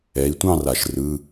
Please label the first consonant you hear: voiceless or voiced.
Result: voiceless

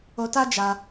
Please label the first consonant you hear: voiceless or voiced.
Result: voiceless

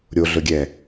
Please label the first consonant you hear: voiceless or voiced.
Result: voiced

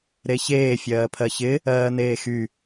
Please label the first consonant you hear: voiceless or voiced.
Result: voiced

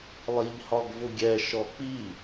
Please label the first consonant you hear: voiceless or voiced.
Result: voiced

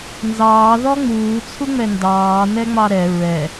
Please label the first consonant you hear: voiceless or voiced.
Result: voiced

